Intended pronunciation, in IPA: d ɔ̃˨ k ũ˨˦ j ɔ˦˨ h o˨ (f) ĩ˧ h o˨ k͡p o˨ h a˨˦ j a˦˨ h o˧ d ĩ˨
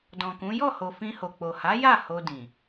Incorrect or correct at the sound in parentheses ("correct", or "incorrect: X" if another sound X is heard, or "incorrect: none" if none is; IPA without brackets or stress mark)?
correct